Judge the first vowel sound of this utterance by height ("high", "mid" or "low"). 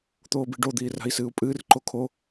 mid